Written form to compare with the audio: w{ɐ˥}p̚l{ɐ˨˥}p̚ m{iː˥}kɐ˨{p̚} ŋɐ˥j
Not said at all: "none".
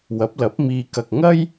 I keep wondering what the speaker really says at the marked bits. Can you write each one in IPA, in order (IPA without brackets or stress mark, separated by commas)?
ɐ˨˥, ɐ˨˥, iː˨, k̚